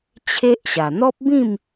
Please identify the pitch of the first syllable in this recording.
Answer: high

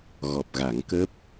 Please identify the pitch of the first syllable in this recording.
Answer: low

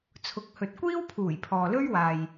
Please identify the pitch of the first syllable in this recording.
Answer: low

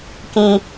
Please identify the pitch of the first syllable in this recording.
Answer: high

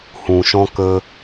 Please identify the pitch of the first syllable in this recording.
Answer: low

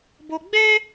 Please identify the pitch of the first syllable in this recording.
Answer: high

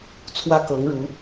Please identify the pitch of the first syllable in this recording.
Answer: high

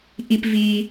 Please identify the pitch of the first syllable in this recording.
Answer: high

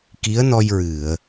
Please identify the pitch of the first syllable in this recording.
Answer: rising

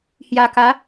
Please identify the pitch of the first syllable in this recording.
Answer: low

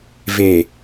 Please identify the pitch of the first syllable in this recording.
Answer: low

